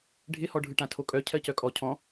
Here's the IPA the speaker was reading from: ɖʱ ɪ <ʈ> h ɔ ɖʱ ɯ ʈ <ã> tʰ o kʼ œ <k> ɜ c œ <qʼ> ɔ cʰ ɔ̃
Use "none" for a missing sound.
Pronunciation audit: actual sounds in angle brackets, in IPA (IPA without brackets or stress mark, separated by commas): none, ã, cʰ, kʼ